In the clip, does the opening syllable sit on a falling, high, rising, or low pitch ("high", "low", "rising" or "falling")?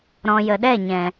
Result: low